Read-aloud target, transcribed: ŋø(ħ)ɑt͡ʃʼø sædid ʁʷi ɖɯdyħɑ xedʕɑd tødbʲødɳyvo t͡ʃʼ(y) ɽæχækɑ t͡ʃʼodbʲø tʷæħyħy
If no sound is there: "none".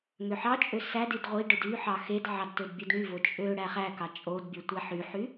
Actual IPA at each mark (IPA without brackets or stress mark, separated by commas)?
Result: ħ, ø